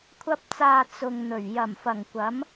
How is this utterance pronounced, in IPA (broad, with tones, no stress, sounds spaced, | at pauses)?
kʷʰ ɐ˧ p̚ t͡s aː˨ t͡s ʊ˨ ŋ n̪ ɵ˨˩ ɥ j ɐ˨˩ m f ɐ˨˩ ŋ kʷ ɐ˨˥ m